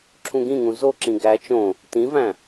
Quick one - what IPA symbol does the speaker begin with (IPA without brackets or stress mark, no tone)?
ǁʰ